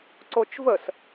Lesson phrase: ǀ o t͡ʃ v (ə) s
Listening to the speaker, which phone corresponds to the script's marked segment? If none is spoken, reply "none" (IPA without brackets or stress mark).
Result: ə